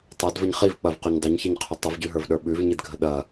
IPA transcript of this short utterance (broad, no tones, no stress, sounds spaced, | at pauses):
tˤ a d v ə ɲ χ i v k͡p ɐ v q o ɲ dˤ ʏ ɲ ç i ɲ qʰ ʏ tˤ ə v ɟ ʉ ɦ ə˞ v ɗ ə˞ ɓ ʉ v ɲ i d ɡʱ ə ɗ ɐ